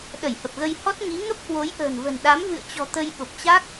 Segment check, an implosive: present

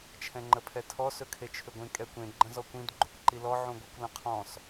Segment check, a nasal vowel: present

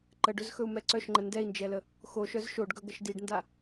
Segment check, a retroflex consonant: present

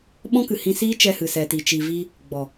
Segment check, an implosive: present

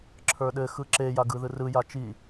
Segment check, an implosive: present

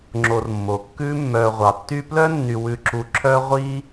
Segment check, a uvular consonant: present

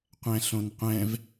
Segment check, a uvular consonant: present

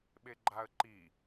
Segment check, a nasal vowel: absent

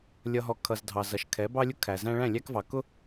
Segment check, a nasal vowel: present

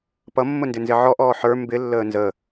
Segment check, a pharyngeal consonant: present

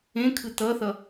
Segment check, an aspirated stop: present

